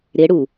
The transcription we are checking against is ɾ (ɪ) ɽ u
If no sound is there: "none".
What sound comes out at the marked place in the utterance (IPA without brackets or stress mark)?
ɪ